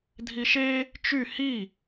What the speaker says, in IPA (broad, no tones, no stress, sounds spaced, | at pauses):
dʱ i ʃ e | t͡ʃ y h i